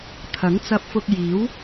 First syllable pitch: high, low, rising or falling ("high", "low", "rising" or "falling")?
rising